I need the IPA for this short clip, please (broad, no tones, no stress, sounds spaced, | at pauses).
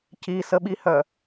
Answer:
c i s ə ɓ i h œ